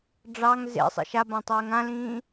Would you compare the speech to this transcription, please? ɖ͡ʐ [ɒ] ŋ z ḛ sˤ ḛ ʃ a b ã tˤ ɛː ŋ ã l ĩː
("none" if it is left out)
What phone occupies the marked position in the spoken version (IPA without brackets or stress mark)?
ɑ